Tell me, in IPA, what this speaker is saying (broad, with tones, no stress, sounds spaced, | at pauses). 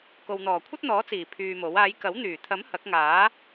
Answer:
k o˨ w n̪ ɔː˨˩ kʷʰ ɐ˥ t̚ n̪ ɔː˨˥ t͡s iː˨˩ pʰ yː˧ m o˨˥ w aː˨˧ j k ɐ˨˥ w n̪ yː˨˩ t̪ʰ ɐ˨˥ m h ɐ˨˥ k̚ ŋ aː˨˥